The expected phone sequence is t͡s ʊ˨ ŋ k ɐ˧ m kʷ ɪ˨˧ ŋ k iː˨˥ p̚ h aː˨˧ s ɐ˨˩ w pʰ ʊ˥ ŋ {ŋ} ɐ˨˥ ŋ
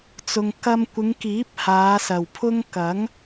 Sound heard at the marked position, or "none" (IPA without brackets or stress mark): k